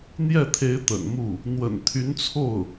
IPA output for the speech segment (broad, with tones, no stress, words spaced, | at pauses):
n̪jɛ˥˩t̪ʰe˧˥ɪ̯ t̪ə̰˨˩nmu˥˩ | n̪wə̰˨˩n t̪ʰy˧˥nt͡sʰo˥˩ʊ̯